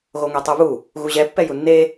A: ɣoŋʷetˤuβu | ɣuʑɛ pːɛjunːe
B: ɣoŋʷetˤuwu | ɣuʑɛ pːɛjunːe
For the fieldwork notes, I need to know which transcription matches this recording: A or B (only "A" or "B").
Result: A